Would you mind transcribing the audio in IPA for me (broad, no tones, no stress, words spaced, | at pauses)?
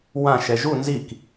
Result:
wã ʃɛʒu nzik